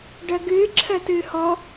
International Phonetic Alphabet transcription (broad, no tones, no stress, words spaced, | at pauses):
ɖɜɡɨː ǁʰɜtɨːhɔ